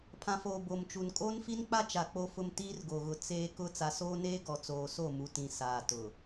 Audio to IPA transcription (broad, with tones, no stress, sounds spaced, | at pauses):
pʰ ã˨ f oː˨ b o˨ m t͡ʃ u˨ n kʼ oː˦ n f i˦ n k͡p a˦ t͡ʃ a˨ k͡p o˦ f ʊ˦ m t iː˦ r ɡ o˨ ɣ ʊ˨ t͡s eː˦ k ʊ˦ t͡s a˨ s oː˦ n eː˦ ɡ ɔ˨ t͡s oː˨ s o˦˨ m u˨ t ĩ˨ s aː˨ t ʊ˨